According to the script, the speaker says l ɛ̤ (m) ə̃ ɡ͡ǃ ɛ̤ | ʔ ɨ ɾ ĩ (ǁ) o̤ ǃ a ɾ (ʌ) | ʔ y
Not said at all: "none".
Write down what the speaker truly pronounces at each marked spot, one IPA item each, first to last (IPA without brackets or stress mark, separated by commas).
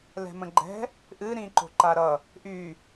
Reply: m, ǃ, ʌ